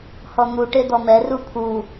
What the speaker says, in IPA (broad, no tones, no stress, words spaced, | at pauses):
hɔn̪u ʈed̪ɔmɛ rupʰu